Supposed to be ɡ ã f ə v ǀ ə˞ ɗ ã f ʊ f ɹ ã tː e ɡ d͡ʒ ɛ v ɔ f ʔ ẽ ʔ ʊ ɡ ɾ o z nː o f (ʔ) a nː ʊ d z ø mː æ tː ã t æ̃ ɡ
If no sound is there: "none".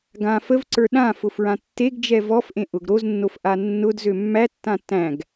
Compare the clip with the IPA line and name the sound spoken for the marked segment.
ʔ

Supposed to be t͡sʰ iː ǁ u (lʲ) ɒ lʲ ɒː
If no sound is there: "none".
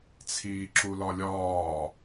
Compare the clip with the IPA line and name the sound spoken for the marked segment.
l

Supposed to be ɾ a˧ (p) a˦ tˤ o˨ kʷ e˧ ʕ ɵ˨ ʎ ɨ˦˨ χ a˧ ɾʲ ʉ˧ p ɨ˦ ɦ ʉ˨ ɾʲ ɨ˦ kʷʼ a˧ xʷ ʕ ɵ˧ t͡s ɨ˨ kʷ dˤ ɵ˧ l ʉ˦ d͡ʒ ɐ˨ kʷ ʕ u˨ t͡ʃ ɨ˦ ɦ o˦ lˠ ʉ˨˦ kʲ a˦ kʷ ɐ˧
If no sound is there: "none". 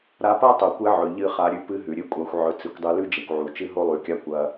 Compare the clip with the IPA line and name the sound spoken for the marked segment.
p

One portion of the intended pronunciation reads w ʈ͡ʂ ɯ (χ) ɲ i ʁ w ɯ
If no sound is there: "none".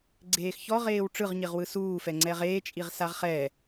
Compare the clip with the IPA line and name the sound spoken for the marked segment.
ʁ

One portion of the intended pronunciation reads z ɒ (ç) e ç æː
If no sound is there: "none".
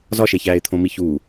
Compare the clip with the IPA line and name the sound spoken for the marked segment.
ʃ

